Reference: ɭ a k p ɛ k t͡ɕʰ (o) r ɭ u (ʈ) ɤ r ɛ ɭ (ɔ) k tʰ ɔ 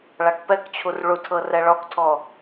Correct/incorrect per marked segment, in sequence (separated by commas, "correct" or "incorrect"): incorrect, incorrect, correct